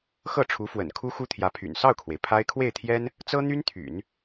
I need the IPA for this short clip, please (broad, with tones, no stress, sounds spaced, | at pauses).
x ɤ˥˩ ʈ͡ʂʰ u˧˥ f w ə̰˨˩ n kʰ u˥ x u˥ t̪ʰ j ä˧˥ pʰ y̰˨˩ n s ɑ˥˩ ʊ̯ kʰ w e˩ ɪ̯ pʰ a˥ ɪ̯ kʰ w e˥˩ ɪ̯ t̪ʰ j ɛ˥ n | t͡s ɤ˥ n̪ y˥ n t̪ʰ y̰˨˩˦ n